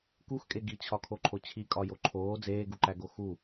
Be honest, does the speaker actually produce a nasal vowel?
no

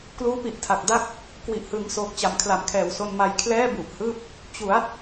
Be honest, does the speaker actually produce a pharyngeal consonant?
no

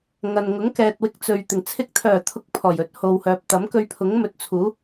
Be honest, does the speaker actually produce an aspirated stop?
yes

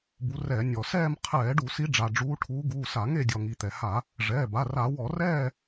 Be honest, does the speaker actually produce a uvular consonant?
yes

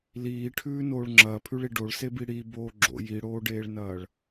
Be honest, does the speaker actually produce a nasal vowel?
no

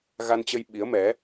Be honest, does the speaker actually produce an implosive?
yes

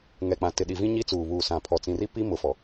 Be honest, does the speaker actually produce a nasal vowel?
yes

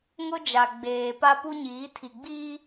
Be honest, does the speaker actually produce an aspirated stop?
yes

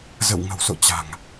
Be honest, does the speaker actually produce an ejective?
no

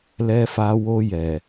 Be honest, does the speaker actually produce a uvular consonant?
no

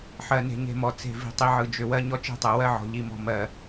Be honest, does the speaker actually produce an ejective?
no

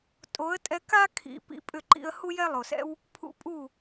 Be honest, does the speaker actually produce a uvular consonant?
no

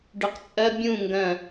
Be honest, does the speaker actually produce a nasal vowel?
yes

